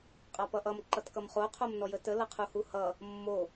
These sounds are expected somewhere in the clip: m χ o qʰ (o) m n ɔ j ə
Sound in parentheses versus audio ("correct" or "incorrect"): correct